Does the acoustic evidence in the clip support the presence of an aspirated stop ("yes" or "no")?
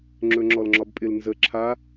yes